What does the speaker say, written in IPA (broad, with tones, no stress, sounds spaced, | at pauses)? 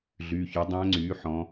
ɮ yː˩˧˩ ç œ˩˥ dˤ æ̃˧˥ ŋ͡ǀ yː˩˥ ħ ɔ̃˧˥